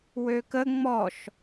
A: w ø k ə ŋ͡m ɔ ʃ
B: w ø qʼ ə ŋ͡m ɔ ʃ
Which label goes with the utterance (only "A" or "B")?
A